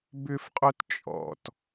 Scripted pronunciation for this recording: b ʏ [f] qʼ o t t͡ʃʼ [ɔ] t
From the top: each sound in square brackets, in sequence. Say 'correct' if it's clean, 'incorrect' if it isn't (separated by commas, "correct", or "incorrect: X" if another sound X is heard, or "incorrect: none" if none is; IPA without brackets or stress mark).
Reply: correct, incorrect: ɔ̰